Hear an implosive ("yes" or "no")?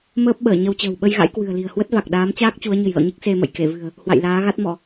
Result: yes